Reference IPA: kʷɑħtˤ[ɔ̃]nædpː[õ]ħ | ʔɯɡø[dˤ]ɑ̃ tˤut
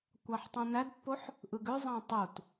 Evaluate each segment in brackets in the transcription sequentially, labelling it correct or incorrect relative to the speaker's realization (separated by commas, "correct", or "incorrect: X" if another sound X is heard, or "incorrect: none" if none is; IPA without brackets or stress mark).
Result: incorrect: õ, incorrect: o, incorrect: zˤ